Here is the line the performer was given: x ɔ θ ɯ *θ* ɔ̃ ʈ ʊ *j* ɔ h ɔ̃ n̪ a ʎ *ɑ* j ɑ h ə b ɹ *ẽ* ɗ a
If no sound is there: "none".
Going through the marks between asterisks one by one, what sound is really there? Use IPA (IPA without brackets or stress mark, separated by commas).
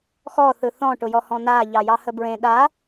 θ, j, ɑ, ẽ